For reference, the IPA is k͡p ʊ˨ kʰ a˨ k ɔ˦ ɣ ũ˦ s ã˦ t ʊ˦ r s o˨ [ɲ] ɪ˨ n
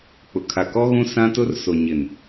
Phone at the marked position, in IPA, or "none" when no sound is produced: ɲ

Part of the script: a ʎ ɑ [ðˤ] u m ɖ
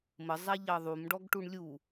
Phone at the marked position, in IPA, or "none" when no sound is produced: ðˤ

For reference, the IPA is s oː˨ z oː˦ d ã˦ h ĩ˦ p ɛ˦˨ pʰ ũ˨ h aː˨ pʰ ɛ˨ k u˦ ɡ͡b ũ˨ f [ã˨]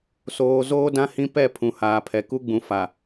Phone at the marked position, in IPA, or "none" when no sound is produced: a˨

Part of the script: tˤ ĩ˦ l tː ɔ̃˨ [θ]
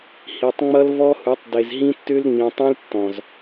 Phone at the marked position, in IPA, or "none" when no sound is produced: z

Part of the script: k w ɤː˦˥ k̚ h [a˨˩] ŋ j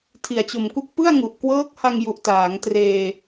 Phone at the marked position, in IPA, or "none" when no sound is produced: a˧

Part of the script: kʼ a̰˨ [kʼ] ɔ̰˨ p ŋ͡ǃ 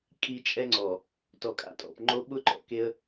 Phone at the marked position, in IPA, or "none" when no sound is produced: tʼ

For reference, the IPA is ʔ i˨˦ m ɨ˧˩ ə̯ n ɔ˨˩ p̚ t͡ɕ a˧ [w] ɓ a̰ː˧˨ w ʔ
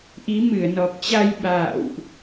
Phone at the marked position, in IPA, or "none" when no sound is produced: j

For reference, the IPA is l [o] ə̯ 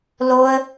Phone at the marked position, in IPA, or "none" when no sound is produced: o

